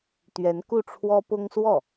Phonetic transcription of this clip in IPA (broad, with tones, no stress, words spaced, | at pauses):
t̪ɥɛ˧˥nku˥˩ʈ͡ʂʰwɔ˥ pʊ˥ŋswɔ˥˩